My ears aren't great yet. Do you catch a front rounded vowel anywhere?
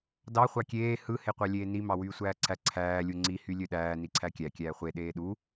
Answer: yes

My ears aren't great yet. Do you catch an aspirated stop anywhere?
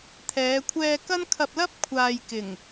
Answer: yes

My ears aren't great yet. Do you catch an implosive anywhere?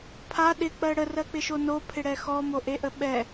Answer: yes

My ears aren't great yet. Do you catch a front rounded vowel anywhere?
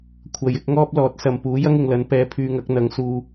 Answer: yes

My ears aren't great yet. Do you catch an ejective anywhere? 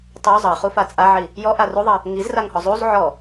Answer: yes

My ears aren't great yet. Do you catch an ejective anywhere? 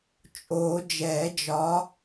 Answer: yes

